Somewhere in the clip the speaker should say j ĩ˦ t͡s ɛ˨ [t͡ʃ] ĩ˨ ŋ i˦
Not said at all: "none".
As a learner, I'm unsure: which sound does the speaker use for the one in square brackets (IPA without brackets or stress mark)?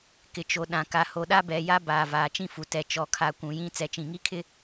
t͡ʃ